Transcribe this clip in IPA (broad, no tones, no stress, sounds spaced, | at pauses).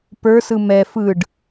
p ə˞ s ɯ m ɛ f ɯ ɖ